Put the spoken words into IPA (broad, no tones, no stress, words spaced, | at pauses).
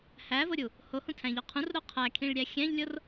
hævoɾʲu | hohũtʰæ̃ʎɒ qʰũrɾo qʰækʰĩɭɾʲæ xʲæ̃ʎlʲor